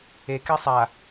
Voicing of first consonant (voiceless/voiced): voiceless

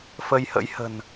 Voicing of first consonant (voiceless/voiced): voiceless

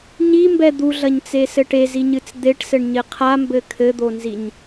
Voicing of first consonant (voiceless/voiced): voiced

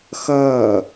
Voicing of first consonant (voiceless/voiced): voiceless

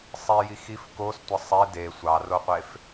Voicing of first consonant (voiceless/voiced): voiceless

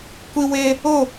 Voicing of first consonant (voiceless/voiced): voiceless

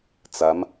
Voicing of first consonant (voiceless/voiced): voiceless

